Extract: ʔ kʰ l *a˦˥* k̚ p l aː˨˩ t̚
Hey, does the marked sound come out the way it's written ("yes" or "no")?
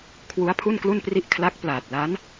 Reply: yes